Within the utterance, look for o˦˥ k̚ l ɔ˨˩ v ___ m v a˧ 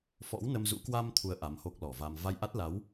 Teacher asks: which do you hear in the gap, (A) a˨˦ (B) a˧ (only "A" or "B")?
B